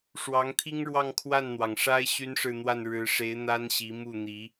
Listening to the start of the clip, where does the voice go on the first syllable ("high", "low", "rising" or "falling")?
rising